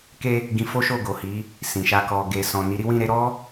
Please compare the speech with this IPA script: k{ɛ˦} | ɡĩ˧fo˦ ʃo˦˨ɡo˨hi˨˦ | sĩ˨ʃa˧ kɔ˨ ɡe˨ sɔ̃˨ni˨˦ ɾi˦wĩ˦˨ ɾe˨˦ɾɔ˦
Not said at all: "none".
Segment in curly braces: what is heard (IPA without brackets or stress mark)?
e˦